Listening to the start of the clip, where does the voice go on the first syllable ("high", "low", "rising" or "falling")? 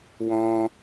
high